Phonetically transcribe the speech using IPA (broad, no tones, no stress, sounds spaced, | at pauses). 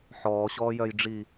ħ ɔː ɕ ɔː j œ j ɖ͡ʐ i